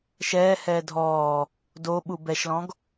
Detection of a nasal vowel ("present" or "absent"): present